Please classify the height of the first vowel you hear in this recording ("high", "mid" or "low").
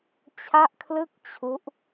low